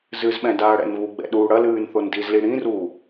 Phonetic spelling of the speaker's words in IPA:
z ɨ z ɓ ɛ̃ d aː ɽ ɛ̰ n β u ɡ͡b ɛ̰ ɗ uː ɽ ɐ l ɨː n θ o n d i z l i ɽ ĩ r uː

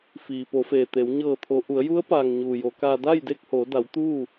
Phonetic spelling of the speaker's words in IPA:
f iː˩ p o˩˧ f eː˩ t̪ e˩˧ w ɲ ɤː˧˩ t̪ʰ o˩˧ ʔ u˩˧ ə̯ j u˧˥ ə̯ p aː˩ ŋ ɲ uː˩ j o˩˧ k aː˧ d a˥˨ j d e˥˨ k̚ h o˩˧ d a˩˧ w t̪ uː˥˨

